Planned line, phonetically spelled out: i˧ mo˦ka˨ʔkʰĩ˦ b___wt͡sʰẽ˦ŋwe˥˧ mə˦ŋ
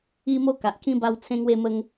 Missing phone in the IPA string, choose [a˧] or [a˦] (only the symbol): a˦